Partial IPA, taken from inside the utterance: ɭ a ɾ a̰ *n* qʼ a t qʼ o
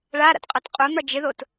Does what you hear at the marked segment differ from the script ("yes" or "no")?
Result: yes